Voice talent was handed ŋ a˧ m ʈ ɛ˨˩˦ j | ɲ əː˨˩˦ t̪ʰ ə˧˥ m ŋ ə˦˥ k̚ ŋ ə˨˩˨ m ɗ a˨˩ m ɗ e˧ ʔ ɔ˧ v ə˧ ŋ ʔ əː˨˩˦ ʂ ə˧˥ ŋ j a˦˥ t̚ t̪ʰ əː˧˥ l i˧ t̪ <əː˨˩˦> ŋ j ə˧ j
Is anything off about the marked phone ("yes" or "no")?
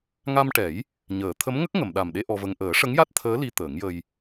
no